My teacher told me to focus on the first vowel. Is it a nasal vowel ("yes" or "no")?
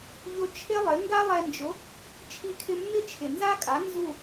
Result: no